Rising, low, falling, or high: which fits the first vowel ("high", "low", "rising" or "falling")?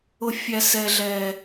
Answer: low